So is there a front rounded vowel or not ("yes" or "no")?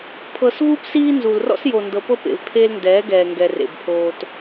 no